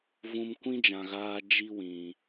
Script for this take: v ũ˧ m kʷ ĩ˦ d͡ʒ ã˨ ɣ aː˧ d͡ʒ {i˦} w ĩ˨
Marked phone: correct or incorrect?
correct